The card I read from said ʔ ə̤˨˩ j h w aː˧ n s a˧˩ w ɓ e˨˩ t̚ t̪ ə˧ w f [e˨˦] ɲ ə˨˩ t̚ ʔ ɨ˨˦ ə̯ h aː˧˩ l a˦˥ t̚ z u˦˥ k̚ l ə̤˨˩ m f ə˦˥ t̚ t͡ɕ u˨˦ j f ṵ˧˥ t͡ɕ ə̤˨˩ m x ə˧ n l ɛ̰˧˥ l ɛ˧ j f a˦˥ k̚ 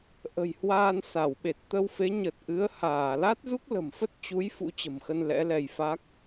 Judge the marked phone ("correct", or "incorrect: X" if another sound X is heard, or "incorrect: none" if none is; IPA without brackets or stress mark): correct